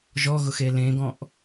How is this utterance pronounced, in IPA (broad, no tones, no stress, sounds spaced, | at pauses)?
ʒ ɔ ɣ ʊ x e l ẽ ɡ ɔ̃ ʔ